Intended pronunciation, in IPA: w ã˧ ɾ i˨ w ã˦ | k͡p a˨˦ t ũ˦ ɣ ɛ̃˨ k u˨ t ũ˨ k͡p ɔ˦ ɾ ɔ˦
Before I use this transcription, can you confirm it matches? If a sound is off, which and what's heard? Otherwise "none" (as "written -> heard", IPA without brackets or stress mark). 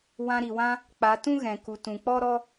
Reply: none